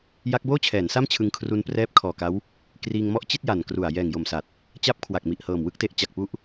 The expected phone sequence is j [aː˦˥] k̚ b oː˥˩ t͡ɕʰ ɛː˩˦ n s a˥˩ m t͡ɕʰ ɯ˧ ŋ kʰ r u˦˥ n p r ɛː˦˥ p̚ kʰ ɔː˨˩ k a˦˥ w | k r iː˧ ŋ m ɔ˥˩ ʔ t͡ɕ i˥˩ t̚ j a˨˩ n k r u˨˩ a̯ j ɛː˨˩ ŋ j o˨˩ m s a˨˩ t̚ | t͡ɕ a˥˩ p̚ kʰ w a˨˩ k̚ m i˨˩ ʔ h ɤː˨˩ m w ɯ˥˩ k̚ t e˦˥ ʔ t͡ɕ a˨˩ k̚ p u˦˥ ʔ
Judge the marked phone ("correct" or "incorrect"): incorrect